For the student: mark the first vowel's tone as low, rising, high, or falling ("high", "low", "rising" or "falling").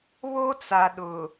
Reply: high